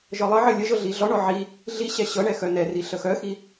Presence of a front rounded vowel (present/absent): present